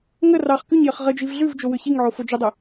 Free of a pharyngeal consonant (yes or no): no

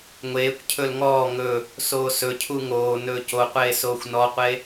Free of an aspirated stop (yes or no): no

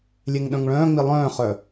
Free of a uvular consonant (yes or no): no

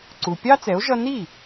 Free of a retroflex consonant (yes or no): yes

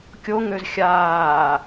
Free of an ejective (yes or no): yes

